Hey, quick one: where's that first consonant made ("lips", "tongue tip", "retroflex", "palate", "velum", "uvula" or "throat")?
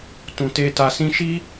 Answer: tongue tip